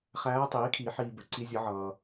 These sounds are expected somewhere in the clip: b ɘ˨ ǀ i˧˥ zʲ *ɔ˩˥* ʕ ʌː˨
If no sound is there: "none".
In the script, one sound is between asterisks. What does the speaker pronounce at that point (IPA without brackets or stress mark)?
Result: ʌ˩˥